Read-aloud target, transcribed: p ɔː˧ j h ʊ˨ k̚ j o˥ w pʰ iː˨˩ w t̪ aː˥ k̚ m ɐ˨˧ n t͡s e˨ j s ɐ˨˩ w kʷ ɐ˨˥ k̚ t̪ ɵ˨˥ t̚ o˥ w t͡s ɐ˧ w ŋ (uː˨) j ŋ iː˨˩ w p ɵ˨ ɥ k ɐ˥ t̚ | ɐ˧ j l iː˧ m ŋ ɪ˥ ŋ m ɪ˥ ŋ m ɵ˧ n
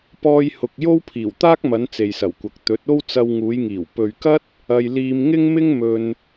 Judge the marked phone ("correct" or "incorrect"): incorrect